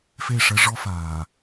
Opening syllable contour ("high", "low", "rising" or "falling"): falling